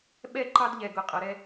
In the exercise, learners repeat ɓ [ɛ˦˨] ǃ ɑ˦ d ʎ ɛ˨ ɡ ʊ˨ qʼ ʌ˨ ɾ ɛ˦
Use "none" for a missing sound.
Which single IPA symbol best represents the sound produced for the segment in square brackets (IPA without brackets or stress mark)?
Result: ɛ˦˨